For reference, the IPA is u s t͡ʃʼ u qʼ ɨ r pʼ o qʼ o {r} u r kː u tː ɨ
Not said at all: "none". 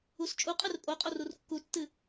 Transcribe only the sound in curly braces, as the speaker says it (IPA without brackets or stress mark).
r